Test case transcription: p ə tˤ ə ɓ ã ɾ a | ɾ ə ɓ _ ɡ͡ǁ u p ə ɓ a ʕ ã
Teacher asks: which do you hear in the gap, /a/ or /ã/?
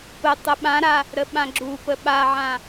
ã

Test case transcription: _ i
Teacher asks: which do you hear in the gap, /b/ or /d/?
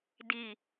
d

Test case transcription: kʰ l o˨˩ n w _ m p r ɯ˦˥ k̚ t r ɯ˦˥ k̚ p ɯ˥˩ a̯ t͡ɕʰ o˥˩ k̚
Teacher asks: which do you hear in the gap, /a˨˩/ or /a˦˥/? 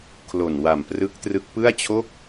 a˨˩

